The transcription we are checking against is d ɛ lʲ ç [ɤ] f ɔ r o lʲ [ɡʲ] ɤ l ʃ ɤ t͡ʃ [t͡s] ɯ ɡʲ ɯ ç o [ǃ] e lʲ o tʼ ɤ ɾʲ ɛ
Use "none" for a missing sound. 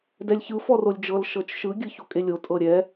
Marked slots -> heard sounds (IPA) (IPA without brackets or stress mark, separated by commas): ɯ, d͡ʒ, ʃ, kʼ